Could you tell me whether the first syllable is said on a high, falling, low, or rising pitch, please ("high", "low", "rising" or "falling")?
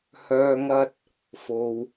low